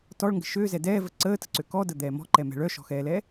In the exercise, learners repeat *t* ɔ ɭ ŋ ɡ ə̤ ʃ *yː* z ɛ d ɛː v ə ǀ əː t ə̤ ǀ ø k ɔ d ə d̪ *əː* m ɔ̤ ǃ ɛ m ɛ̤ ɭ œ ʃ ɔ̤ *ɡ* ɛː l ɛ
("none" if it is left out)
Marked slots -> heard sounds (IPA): t, øː, ɛː, x

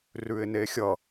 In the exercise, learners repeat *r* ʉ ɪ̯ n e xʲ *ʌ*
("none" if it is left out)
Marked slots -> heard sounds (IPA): r, ʌ

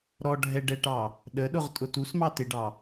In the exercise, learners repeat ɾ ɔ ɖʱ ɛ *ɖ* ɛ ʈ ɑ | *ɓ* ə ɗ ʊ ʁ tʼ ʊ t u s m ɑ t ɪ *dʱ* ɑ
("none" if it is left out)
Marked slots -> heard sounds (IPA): ɖ, ɗ, ɖ

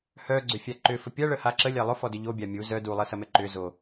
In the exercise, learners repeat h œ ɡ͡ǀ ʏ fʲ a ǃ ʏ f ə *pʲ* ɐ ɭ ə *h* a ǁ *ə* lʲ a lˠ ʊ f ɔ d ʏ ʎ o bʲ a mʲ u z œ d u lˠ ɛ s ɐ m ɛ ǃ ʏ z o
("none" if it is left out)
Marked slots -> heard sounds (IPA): pʲ, h, ə

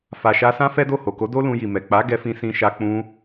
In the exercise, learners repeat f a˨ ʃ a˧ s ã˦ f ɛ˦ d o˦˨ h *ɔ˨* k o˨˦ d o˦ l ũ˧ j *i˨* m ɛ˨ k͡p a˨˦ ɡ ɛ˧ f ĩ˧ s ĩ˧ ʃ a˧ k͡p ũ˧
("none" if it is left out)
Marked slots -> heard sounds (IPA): o˨, i˨

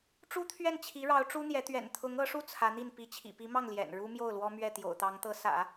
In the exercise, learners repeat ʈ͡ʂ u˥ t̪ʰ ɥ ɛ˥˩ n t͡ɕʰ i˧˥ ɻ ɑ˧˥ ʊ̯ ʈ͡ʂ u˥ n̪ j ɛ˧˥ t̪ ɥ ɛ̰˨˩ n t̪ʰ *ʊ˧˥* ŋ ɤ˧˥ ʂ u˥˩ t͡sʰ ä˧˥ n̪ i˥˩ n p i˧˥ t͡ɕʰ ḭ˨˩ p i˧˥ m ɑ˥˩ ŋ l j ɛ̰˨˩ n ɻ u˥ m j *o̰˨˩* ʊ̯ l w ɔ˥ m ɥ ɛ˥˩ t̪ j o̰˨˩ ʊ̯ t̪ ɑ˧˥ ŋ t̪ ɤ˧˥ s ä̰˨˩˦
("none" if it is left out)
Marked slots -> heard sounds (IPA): ʊ˧˥, o˥˩

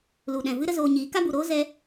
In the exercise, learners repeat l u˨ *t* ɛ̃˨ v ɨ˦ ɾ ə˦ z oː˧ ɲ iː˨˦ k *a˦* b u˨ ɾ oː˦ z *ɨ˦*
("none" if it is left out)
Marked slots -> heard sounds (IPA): ɗ, a˦, ɛ˦

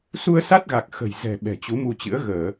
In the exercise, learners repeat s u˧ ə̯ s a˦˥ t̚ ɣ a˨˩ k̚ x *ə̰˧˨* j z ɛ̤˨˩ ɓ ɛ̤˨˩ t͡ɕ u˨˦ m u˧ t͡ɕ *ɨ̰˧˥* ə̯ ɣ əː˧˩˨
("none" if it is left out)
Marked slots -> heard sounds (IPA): ə̤˨˩, ɨ̰˧˥

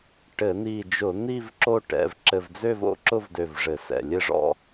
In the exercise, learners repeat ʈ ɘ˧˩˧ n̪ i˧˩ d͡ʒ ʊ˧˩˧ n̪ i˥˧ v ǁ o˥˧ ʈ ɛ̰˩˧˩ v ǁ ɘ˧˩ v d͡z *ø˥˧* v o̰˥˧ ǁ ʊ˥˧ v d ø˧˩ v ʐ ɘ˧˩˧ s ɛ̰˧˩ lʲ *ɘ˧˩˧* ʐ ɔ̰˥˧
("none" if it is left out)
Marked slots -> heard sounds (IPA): ø˥˧, ɘ˥˧

